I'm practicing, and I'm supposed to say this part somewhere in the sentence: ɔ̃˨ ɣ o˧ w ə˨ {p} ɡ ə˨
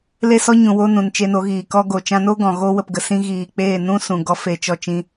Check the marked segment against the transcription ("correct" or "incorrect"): correct